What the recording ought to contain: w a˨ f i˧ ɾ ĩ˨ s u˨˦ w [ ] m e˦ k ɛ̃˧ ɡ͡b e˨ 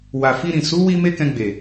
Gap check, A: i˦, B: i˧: B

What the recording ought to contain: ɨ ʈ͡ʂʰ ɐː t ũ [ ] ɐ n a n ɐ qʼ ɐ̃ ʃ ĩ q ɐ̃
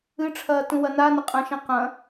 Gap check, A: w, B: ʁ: A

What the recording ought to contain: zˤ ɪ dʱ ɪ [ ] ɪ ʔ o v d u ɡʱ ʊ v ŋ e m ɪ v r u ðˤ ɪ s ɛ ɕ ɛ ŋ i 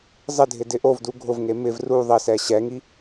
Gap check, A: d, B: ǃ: A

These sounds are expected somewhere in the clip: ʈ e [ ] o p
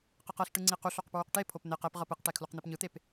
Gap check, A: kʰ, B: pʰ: B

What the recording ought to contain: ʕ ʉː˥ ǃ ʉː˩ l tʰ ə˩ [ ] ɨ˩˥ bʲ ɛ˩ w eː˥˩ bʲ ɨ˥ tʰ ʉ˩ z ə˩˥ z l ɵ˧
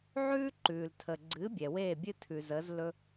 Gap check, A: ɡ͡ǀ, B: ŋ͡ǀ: A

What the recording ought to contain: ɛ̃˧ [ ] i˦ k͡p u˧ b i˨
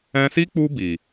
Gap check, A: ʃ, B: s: B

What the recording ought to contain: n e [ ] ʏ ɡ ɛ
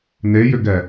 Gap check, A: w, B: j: B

